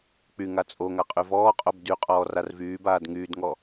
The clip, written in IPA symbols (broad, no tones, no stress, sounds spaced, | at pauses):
k͡p y ŋ a t͡sʼ o ŋ a qʼ y v ɔː qʼ o b d y qʼ ɔː r a r v yː b aː d ŋ yː d ŋ ɔ